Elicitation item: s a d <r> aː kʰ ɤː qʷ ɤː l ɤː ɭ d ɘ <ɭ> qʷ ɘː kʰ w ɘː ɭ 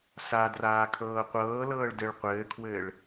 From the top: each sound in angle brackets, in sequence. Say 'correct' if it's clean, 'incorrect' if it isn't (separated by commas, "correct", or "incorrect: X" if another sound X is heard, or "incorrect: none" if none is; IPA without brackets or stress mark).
correct, correct